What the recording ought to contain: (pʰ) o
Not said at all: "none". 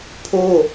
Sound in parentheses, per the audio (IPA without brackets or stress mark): pʰ